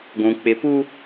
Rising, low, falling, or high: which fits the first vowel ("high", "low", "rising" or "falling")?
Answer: low